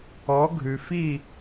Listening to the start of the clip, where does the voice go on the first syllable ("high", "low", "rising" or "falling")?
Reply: rising